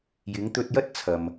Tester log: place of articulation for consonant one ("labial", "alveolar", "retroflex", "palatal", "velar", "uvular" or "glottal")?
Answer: palatal